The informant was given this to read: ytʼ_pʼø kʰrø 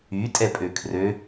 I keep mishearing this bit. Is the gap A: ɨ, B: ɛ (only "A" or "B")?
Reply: B